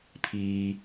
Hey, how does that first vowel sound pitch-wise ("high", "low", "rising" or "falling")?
high